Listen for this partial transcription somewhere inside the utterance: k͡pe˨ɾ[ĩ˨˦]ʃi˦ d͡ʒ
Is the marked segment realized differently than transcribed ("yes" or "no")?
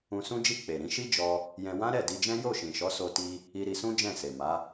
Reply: no